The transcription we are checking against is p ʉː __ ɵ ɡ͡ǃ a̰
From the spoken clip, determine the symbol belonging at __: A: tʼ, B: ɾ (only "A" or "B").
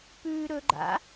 B